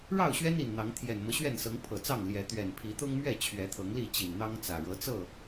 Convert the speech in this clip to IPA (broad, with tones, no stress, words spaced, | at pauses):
ɻɑ˥˨ʊ̯ɕɥɛ˦n i˨˩nn̪ɑ˨˦ŋ t̪ʰjɛ˨˩nmɤ˦ɕɥɛ˥˨nsɤ˨˦ŋ pʰɤ˨˩t͡sɑ˥˨ŋ ljɛ˨˦ t̪ɥɛ˨˩npʰi˨˦t̪ʊ˦ŋmɥɛ˥˨ t͡ɕʰɥɛ˨˦t̪ʰɤ˨˦ŋli˥˨ t͡ɕi˨˩nn̪ɑ˦ŋt͡sä˨˩ ɻɤ˨˦t͡sɤ˥˨